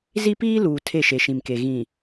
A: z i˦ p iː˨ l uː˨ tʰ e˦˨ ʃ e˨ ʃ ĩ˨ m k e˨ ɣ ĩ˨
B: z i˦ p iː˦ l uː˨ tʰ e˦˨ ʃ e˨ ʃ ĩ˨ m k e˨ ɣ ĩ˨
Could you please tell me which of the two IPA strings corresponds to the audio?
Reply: B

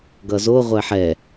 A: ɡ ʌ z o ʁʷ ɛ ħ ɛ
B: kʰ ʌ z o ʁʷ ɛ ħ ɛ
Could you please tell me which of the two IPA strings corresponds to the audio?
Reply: A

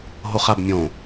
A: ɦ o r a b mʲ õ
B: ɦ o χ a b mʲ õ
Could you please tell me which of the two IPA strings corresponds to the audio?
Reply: B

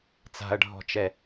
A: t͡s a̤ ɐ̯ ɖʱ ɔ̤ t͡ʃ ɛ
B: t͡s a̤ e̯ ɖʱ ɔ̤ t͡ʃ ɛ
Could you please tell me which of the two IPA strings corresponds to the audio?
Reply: A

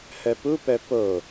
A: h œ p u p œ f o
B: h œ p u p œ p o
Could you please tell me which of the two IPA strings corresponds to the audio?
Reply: B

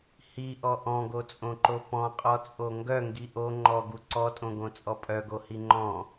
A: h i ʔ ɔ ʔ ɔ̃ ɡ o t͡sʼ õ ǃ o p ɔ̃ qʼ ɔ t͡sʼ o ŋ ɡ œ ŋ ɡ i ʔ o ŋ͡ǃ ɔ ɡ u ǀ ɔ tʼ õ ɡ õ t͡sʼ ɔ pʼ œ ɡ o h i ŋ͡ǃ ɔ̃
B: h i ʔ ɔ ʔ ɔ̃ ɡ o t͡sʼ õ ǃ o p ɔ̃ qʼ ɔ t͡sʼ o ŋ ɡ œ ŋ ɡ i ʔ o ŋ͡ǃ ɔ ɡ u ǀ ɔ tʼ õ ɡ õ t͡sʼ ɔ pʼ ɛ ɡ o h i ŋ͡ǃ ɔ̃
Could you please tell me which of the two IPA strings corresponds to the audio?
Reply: A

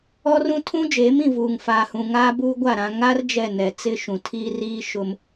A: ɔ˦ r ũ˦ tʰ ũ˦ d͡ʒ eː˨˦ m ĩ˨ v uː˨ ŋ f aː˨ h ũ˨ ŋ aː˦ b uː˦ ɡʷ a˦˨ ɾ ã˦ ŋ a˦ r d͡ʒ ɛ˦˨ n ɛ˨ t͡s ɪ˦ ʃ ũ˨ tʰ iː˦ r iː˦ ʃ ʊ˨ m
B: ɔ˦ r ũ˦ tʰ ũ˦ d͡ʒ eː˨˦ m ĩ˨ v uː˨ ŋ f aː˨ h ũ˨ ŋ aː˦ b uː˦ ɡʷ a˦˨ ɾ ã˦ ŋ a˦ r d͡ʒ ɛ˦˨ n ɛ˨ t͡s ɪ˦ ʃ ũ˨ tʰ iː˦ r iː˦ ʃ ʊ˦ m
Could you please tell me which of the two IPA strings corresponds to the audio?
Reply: B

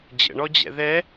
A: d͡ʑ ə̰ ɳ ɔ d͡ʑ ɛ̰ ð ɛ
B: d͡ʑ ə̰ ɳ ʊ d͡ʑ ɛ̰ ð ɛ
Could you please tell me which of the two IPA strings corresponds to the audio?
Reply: A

